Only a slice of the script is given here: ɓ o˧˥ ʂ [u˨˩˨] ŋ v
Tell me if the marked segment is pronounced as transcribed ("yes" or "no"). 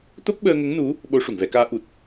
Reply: yes